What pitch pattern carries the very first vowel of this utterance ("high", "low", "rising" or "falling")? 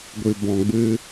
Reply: low